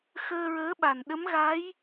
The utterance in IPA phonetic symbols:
xəː˧ɹəː˧˥ɓa˨˩n ɗə˧˥mɣa˧˥j

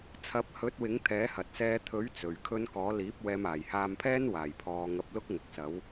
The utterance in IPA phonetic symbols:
t͡sʰɐ˨˥p̚hɵ˨˥t̚ wɪ˨˥ŋt̪ʰɛː˨˥ hɐ˨t̚ sɛː˨˧t̪ʰɵ˨˥ɥ t͡sɵ˨ɥkʰɵ˥n kɔː˨˥liː˨˥p̚wɛː˧m aː˨˩jhaː˧mpʰɛː˥n waː˨˩jpʰɔː˨ ŋɐ˧p̚lʊ˥k̚ ŋʊ˨k̚sɐ˨˥w

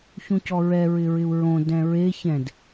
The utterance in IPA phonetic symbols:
çũcɔɹɛ ɹɪɹɪu̯ɹõ dɛ̃ɹe çɛ̃d

